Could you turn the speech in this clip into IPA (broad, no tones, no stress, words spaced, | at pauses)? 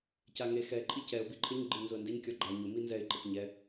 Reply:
caŋe xɛ ǃʼicɛʊ̯ biǃʰɪɲ ɡ͡ǃɪɲnzʊə̯ndeɲ kʲɔɡ͡ǃa ɲʊ minzɛɪ̯ ǃɪtɲɛ